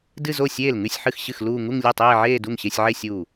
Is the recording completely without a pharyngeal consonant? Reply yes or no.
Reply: no